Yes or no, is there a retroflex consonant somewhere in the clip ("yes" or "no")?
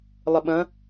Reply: no